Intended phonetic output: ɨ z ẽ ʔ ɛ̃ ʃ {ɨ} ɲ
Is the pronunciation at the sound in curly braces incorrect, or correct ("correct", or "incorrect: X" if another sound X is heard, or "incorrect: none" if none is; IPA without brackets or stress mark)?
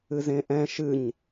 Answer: correct